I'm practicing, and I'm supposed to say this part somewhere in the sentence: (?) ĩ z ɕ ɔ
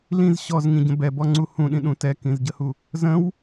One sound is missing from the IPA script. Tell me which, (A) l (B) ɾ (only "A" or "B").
A